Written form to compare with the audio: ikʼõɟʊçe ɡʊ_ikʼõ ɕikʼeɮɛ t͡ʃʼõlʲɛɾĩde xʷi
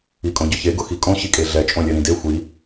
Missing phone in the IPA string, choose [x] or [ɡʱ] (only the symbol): x